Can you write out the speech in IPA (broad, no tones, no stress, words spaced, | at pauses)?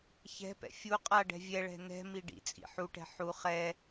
çɛ̤pɛ̰ fʲu qʼaɖɛ̤ vʲɛɭɛ̤ nɛ̤ miɖḭt͡sʼḭ ħuʈɛ̤ ħu χɛ